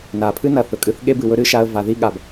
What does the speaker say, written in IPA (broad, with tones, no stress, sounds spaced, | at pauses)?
n a˩ pʰ ɨ˥ n ɐ˩ θ ɵ˩ kʼ ɨ˧ θ ɠ e˥ b ɨ˩ w ɵ˥ ɾ ɨ˧ ʃ a˧ ə̯ v a˩ ð i˥ ɠ a˩ b